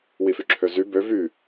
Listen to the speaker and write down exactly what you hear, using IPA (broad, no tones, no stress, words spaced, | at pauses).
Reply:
wifyǁʰøzy bø vy